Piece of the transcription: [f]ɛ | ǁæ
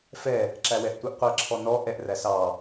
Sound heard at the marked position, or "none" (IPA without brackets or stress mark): f